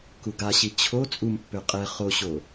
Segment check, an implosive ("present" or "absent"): absent